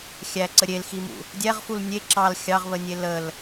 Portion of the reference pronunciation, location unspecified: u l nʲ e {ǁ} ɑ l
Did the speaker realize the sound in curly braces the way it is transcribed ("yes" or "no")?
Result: yes